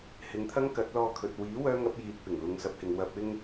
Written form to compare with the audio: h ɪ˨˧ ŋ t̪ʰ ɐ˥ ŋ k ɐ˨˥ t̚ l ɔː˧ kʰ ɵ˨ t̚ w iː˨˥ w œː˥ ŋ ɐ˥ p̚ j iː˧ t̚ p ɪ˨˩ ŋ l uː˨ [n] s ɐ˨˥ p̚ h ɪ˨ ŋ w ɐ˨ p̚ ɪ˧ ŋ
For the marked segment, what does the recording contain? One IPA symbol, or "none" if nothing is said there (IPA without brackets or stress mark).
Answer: ŋ